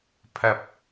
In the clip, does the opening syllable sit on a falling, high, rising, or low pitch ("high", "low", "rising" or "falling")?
rising